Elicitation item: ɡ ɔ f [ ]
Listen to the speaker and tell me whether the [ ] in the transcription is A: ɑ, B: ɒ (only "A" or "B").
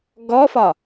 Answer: B